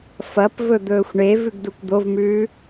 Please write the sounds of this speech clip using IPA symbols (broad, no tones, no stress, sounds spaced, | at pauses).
f ɐ p v ɵ d̪ ɵː xʷ ɳ e v ʉ ɡ d u kʷ d̪ o v m ʉː